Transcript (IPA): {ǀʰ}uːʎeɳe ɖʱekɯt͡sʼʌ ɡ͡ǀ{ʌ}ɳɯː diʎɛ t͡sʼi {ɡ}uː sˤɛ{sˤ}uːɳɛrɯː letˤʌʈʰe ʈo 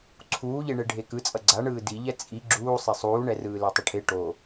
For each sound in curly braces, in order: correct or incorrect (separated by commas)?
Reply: correct, incorrect, incorrect, correct